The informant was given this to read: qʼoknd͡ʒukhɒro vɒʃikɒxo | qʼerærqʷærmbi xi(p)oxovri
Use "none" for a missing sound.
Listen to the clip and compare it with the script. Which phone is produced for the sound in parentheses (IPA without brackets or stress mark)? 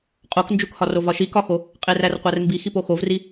p